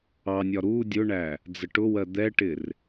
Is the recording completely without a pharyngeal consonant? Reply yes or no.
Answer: yes